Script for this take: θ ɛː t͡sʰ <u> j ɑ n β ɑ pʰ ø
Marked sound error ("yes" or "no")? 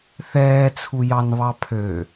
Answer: no